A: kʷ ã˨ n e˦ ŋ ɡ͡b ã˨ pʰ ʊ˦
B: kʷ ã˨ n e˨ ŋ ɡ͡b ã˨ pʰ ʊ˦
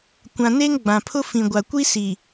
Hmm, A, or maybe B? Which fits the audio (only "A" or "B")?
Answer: A